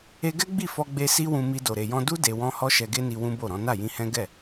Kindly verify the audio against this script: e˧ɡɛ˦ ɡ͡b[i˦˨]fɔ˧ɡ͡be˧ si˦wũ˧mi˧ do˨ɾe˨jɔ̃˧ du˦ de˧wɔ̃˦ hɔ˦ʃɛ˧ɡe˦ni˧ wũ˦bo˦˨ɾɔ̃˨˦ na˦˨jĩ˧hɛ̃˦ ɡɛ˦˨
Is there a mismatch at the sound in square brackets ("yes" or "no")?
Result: no